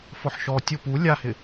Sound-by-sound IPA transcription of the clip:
fɔħʃɔ tʲʊ pu lʲahɪ

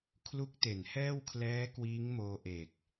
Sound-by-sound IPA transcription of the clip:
kʰlu˦˥k̚te˩˦nhɛː˥˩wkʰlɛː˦˥ kwiː˦˥ŋmoː˧ʔe˨˩k̚

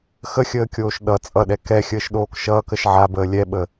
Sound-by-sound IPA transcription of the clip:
xəxʲəːkʲoːʃ ɗʌ t͡sʼʌɗɛ kɛxʲəːʃɗoːk ʃʌːkəʃ ʕabəː lʲɛɓə

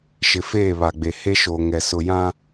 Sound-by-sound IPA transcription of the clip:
ʃɪ˨feː˦˨βa˨ɡ͡be˨ he˦ʃo˨ŋɛ˨ sʊ˨jã˦

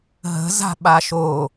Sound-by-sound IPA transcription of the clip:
ɦə̤ za̤ɓaʃo

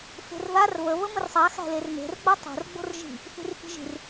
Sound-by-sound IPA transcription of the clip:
fe̤rðar βə βəmərsˤa xæ̤lerme̤r ɡ͡batˤo̤r ɡ͡bo̤rʒi̤ | θi̤rfi̤ʒi̤r

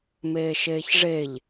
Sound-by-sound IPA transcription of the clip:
meːʃeːçʐeʎ

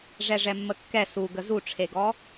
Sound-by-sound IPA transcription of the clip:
ʐɛʐɛmːəkːɛ suɡə zuʈ͡ʂʰeɡɔ

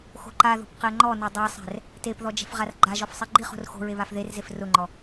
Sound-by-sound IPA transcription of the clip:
xo̤ǃaðo̤p qɛŋ͡ǃɔno dˤasˤɛ̤r | tepðɔ d͡ʒɛ̤fʁarɡ͡ǃaʒɔf sˤeɡ͡ǃiχo̤r xo̤ɹe βafðerzef rʊŋ͡ǃɔ

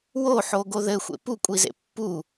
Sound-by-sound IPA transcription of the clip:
woħoɡo ðɘxʷḛ pukʷʼizḛ pːu

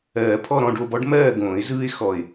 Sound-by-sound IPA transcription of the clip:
ɜː˨˩˦pʰɔ˥˨ ɾɔ̃˥˨ɖo˥˨bɔ˦ɖ mɜː˥˨ɡõː˨˩˦ɪ̯zɯː˦ɪ̯ xɔ˧˩ɪ̯

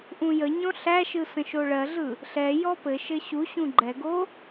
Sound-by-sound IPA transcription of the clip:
ʔũjəɲɔ̃ ɬæʃɯ sə̃ʃoɭɜɮɯ | ɬɛjɔ pɘ ʃɘɕuɕũ ɡ͡ǃɛɡo

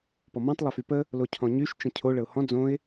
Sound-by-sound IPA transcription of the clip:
pɔmɔ̃tˤ lˠəfypə | locʰɔ̃ɲyʃ t͡ʃə̃cʰo ɭəʊ̯hɔ̃ d͡zõɪ̯

